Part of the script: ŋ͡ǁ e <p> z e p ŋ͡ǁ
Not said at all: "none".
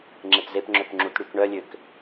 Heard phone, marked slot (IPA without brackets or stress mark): p